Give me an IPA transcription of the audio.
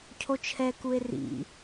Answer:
cʰ o t͡ʃʰ ɛ k u e̯ r ḭ

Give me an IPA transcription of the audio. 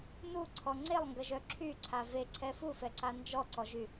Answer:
n u ǀʰ ɔ ŋ͡ǀ e lˠ ŋ ɡ ə ʒ œ ǁʰ y ǀʰ a v e ǀʰ ɛ f u f ɛ ǀ a n d͡ʒ ɔ ǀ ɔ ʒ y

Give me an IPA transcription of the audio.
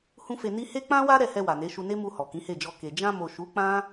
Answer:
h ũ˦ f e˧ n i˦ h e˦ k͡p ã˦ w a˦ ɾ ɛ˦˨ h ɛ˧ w a˨ n e˨˦ ʃ u˧ n e˦ m u˧ h ɔ˨ k ĩ˨˦ h e˦˨ d͡ʒ ɔ˧ k e˨ d͡ʒ ã˧ m o˨ ʃ u˨˦ k͡p ã˦

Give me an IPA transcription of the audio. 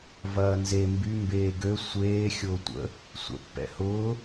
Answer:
v ɐː n z e m b y m b eː ɡ ø sʷ eː xʲ ʊː tʷ ə̰ | sʷ ɛ̰ pː ɛ̰ h ʊː

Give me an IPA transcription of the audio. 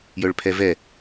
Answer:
j œ ɭ pʰ ɛ v ɛ

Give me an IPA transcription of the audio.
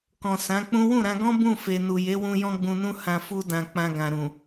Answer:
k ɔ̃˨ s ã˨˦ k͡p ũ˦ w ũ˦˨ ɾ ã˧ ɡ ɔ̃˦ b ũ˦˨ f e˨ n u˨ j e˨˦ w ũ˧ j ɔ̃˦ ɡ͡b ũ˧ n ũ˦ h ã˧ f u˧ d ã˨ k͡p ã˧ ɡ ã˨ ɾ ũ˨

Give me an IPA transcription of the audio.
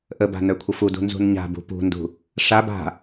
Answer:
ʔ ə b a̤ n ə˞ kʷʰ ə f u d ṳ n z ṳ n ɲ a̤ b ṳ p ṳ n d ṳ | ʂ a b a̤

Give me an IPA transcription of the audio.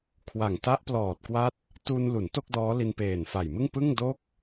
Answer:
kʰ w a˨˩ ŋ t a˦˥ ʔ p l ɔː˨˩ t̚ k w a˦˥ t̚ | t u˧ n l u˩˦ n t o˥˩ k̚ d ɔː˦˥ l i˧ n p eː˨˩ n f a˨˩ j m ɯ˥˩ ŋ p ɯ˥˩ ŋ d o˥˩ k̚

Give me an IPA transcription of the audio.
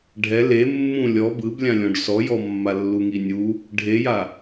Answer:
ɖʱ ɛ l e mː ũ lʲ ɔ b ɯ b lʲ ã lʲ ɔ̃ ɖ s ɔ j ɔ mː a lː u ŋ i nʲ u | ɖʱ e j a

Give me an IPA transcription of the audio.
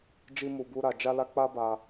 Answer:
d͡ʒ i˦ m u˧ b u˦ ɾ a˧ d͡ʒ a˦ l a˦ k͡p a˦ b a˧

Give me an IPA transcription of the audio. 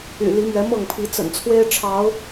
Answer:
y̰˨˩ l i˨˦ m ɥ ɛ˨˦ m ɤ˥˨ ŋ pʰ i˨˦ t͡s ə̰˨˩ n t͡sʰ w e˦ ɪ̯ ʈ͡ʂʰ ɑ˨˦ ʊ̯

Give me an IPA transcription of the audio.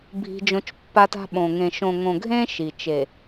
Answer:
bʱ i̤˦ d͡ʒ õ˦ t͡ʃ pː a˦ t a̤˦ ɓ õ˨ ŋ ẽ˨ ʃ õ˨ ŋ õ˨ ɡʱ ẽ˦ ʃ i˨ t͡ʃ e˨

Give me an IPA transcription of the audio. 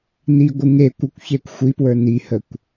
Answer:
n i ɡʷ ɨ ŋ e kʷ ə kʷ ç e kʷ xʷ i p w ə˞ n i h ə kʷ

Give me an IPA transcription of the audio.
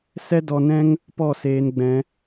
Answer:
s ɛ˦ d ɔ˧ n ɛ̃˦ ŋ | p ɔ˦˨ s eː˧ n ɡ͡b ɛ̃˧

